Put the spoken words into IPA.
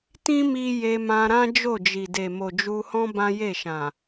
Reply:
tĩ˦ mi˦ je˧mã˧ɾã˦ d͡ʒo˦˨d͡ʒi˨de˨ mo˨d͡ʒu˧hɔ̃˦ bã˦je˦˨ʃã˨

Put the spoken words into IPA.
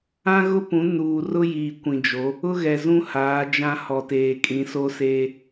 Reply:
ã˦ɣʊ˦pũ˨˦ nuː˨ rʊ˦jiː˨ kʷĩ˨d͡ʒo˨˦ | ʊ˦ɣɛ˨zũ˦ haː˨˦d͡ʒã˦ hɔ˨teː˨kʼĩ˨˦ so˦seː˦

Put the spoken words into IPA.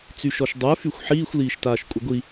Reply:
t͡syʃɔʃdˤə˞ fyxʷħiːxʷ liːʃtaːʃkʷʼəɡʷi

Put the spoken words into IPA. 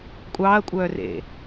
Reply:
kʷʼɑːɐ̯kʷʼœː rḛ

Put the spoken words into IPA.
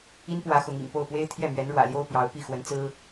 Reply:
i˥npwä˧˥ xʊ˧˥ŋḭ˨˩ŋ po˥˩ʊ̯pwe˥ɪ̯ t̪ʰjɛ˥˩mɥɛ˧˥nɻwä̰˨˩ljo˥ʊ̯ pjɑ˧˥ʊ̯ pi˥˩xwə˧˥n t͡sɹ̩˥

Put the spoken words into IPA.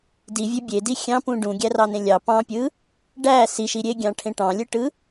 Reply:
divʲø bʲedi xʲɑ̃pũ ɖũɡʲærɑnẽ lʲɑ pɑ̃pʲɯ | ɖæ siʃi ɾʲeɡʲɑ̃ʈʰẽ ʈɑ̃lʲɯʈɯ

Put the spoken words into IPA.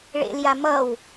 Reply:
ɭḛlja mʌw

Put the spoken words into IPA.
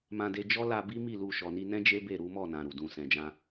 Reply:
mã˧de˧ d͡ʒɔ˦la˧ bi˦mi˦˨ lu˧ ʃɔ˨ni˧nɛ̃˦ d͡ʒe˦ be˦˨ ɾu˨˦mɔ˦˨nã˨ ɾu˨dũ˧ sɛ̃˨d͡ʒã˧

